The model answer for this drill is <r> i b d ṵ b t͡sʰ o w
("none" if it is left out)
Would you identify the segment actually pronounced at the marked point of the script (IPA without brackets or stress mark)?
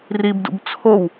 r